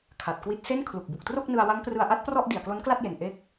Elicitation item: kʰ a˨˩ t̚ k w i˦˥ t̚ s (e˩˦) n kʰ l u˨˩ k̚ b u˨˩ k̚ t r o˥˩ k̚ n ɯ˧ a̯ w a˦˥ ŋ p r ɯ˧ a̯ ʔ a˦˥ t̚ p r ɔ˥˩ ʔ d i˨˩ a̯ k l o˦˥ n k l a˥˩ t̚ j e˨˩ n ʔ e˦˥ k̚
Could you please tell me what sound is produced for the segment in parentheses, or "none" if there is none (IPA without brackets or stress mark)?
e˥˩